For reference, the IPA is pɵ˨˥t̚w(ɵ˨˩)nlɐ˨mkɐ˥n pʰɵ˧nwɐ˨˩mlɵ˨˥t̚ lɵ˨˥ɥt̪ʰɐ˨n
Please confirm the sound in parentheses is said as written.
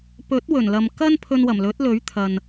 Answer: yes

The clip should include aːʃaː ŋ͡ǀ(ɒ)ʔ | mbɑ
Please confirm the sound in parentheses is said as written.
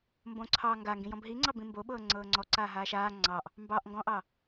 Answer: no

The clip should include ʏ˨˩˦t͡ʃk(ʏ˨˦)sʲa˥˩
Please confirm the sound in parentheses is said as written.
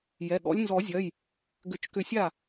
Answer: no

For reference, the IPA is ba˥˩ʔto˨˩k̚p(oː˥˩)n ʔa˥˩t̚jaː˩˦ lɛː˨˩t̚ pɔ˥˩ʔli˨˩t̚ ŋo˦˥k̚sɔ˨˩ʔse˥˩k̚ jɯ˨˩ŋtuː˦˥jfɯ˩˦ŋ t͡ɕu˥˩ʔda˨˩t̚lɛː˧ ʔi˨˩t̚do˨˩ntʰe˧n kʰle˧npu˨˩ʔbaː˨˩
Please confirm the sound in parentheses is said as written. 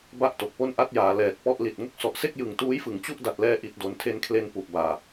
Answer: no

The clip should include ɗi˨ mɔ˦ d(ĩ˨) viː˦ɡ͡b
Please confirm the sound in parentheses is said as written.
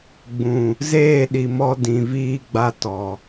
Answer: yes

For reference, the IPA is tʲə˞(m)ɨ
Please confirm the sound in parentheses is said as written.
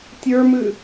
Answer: yes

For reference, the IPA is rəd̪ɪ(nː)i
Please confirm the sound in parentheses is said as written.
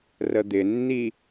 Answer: yes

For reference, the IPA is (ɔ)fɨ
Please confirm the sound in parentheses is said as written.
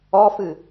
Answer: yes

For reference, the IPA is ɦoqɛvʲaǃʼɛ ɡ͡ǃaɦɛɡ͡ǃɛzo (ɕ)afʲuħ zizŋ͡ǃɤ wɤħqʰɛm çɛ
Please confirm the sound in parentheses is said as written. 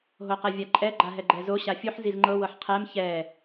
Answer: yes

